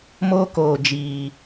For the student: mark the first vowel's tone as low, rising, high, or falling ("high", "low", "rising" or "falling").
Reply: high